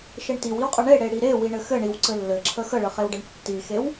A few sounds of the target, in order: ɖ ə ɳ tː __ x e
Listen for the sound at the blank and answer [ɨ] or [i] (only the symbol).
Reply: i